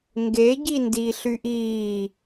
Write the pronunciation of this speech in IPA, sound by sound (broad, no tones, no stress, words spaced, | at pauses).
ŋɡe ɟindiːɬyʔiː